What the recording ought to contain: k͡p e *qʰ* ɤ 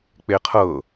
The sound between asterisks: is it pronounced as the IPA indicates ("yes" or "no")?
yes